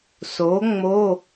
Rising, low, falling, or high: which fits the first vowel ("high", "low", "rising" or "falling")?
rising